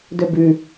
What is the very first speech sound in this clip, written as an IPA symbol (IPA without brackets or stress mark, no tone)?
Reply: d